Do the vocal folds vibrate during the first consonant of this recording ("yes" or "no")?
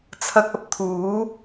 no